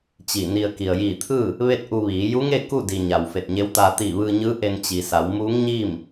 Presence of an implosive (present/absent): absent